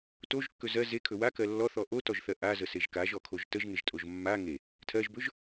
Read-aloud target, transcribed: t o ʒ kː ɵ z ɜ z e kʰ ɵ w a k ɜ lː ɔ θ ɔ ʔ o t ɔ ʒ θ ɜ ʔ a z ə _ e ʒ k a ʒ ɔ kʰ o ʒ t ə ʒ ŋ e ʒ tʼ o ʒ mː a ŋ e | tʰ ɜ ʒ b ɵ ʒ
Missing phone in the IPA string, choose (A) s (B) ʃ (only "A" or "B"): A